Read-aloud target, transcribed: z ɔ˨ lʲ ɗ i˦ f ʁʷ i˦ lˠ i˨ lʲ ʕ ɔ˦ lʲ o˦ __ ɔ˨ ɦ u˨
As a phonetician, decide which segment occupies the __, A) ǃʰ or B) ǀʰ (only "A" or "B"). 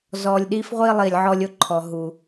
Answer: A